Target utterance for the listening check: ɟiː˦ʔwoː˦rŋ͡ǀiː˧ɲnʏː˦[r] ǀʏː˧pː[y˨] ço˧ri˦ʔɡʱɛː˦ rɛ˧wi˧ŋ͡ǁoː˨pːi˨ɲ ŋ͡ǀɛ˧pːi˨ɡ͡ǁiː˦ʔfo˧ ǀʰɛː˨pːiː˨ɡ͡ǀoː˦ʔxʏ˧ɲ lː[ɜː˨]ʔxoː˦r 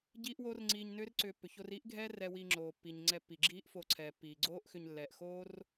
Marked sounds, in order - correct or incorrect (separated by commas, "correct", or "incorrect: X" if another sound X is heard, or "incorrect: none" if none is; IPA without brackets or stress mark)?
correct, incorrect: ʏ˨, incorrect: ɛː˨